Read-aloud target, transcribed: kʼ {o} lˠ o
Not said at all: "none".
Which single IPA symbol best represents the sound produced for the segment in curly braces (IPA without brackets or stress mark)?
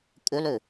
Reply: o